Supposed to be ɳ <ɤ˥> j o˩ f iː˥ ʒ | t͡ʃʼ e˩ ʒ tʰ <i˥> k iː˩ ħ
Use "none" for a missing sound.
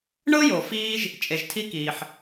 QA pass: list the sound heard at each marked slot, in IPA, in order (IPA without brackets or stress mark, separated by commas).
ɤ˥, i˥